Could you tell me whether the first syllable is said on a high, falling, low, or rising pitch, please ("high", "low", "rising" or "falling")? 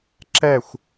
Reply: falling